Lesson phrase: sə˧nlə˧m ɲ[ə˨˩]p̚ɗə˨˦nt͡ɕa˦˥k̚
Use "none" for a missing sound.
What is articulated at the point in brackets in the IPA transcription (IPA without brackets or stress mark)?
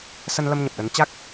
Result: ə˨˩